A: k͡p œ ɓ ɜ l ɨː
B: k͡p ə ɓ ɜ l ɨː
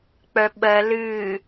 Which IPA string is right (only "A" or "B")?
A